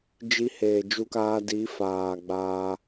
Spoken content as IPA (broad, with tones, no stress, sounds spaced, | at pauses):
d͡ʒ i˧ h eː˨ d͡ʒ u˧ k aː˧ d i˨˦ f aː˨ ɡ͡b aː˧